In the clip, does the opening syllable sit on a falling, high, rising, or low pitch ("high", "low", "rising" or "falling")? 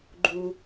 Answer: high